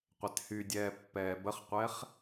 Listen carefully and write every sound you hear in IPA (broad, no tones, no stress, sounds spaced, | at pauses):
qʷ ɛ t h y dʲ ɛː pː ɛː b ə χ qʷ ɛ χ